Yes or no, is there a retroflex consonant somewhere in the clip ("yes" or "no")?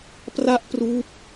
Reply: no